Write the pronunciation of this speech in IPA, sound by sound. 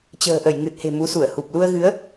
t͡ɕ ə̤ː˨˩ ʔ ə˧˩ j ŋ ɨ˨˩ t̚ h e̤˨˩ m u˨˦ s u˧˩ ə̯ h u˨˩ p̚ l u˧ ə̯ ɣ ɨ˨˦ ə̯

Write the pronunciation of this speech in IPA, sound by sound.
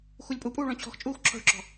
x u lʲ pʼ u pʼ uː ɭ ɔ̃ t͡ɕʰ ɔ̤ x t͡ʃʼ uː x ǁʰ ɔ̤ ɭ ǁ ɔ̤

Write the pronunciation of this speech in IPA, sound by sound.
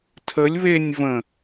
tʰ ə lʲ β e nʲ v ə̃

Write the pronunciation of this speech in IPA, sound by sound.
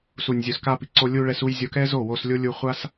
s u˨ nʲ zʲ u˨ s k a˧ p i˨ ǀ o˧ lʲ u˧ ɭ ɛ˧ s u˧ j zʲ o˧ k ɛ˦ z o˦˨ w o˧ s lʲ o˦ lʲ u˧ χʷ a˦ s

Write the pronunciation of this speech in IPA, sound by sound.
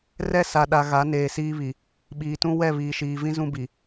r ɛ˦ s a˨ ɗ a˨ ɣ a˨˦ n eː˨ s iː˦ β i˨ | ɓ iː˨ t ũ˦ w ɛ˦˨ β iː˨ ʃ iː˨ v ĩ˦ z ũ˦ b i˨

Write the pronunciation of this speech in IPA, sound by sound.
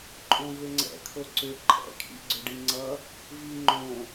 ǃʼ õ v ʏ ŋ͡ǀ ɛ̰ kʰ o ǀ ʏ ǃʼ ɛ̰ kʰ ḭ ɡ͡ǀ ʏ ɖ i ŋ͡ǀ ʌ | v i ŋ͡ǃ õ

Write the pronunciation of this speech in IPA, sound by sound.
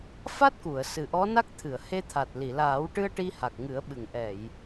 f a˦˥ t̚ k u˨˩˨ ə̯ s ɨ˨˩ ʔ ɔ˧˥ n a˦˥ k̚ t̪ʰ ɨ˨˩˨ ə̯ h e˧ t̪ʰ a˨˩ t̚ l i˨˩˨ l aː˨˩˦ w ʈ ɨ˧ ə̯ ʈ i˧ h a˨˩ k̚ ŋ ɨ˨˩˦ ə̯ ɓ ɨ˨˩˨ ŋ ʔ ɛ˨˩˨ j

